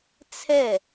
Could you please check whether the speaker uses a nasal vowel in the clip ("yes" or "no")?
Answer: no